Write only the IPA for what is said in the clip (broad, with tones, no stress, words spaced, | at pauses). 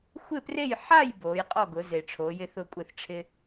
xʷɪ˥˨pre˥˨j ħa˥˨j boː˨˦jqʼɔ˥˨ɡʊ˨˦ ze˨ʈ͡ʂʰoː˨˦ jɪ˦θʊ˥˨kʷʼɪ˥˨θ ʈ͡ʂʰɪ˦